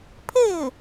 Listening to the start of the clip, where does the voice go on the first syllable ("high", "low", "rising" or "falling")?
falling